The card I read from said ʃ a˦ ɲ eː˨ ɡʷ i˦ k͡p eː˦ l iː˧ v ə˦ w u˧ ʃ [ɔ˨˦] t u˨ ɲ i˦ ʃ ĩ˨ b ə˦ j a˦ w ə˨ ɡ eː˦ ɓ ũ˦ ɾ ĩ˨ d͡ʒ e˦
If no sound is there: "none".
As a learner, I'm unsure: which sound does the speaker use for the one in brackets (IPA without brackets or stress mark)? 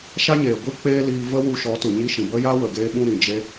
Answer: ɔ˨˦